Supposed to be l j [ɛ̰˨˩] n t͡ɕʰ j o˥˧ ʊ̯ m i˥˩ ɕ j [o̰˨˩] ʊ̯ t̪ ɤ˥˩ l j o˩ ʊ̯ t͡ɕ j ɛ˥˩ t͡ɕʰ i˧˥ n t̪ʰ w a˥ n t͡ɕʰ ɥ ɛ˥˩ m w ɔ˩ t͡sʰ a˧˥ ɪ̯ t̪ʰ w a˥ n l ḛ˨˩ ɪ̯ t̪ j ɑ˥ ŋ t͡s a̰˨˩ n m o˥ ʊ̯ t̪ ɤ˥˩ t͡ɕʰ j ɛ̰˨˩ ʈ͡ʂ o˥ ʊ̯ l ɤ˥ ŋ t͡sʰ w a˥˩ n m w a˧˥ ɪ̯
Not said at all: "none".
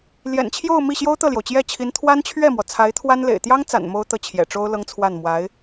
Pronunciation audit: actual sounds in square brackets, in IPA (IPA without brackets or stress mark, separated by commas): ɛ̰˨˩, o˥